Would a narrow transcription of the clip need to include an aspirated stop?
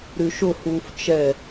no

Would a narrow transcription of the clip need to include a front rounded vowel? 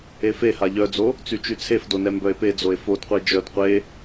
yes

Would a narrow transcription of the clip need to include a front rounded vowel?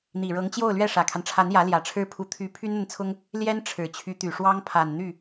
yes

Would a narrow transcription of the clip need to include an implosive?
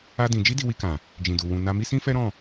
no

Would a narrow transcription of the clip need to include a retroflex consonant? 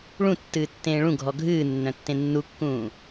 yes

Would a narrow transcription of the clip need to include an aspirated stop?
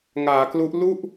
no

